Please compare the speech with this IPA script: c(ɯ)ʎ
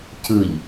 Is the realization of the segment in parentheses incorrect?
no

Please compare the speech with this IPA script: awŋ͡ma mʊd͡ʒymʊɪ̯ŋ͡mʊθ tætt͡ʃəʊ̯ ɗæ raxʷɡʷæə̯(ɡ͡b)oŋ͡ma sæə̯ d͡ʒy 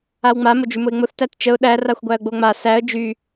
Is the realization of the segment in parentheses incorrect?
no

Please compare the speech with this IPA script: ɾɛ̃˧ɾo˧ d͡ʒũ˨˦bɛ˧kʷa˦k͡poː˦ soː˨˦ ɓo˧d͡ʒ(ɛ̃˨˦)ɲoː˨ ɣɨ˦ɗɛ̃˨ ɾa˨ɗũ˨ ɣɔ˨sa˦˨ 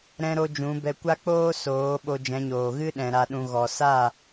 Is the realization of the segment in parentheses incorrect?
no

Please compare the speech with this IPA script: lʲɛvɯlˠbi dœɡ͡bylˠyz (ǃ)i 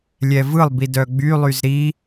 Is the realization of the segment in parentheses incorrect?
yes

